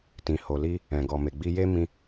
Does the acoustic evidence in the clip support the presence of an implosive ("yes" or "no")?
no